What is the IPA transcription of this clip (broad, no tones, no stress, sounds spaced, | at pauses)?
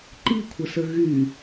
ǃ i kʷʰ ə s ə ɣ y